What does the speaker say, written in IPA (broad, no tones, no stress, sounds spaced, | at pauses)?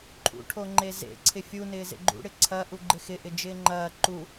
ǃʰ ṵ ʈʰ o ŋ͡ǃ e z ḛ ǀʰ ɪ fʲ u n ɪː z ḛ ɡ͡ǃ ṵ ɽ ɪ ǀʰ ɐ ʔ u ɡ͡ǃ ɪ x ɪ ʔ ɪ d͡ʒ ɪː ŋ͡ǃ ɐː ǃ u